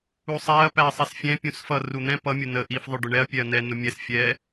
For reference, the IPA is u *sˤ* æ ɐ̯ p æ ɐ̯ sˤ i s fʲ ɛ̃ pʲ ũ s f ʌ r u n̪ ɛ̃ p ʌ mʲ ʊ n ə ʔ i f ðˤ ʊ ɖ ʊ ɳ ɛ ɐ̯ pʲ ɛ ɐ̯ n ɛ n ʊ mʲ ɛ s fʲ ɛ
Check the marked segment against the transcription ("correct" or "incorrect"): correct